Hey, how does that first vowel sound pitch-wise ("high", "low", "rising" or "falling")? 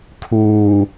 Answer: low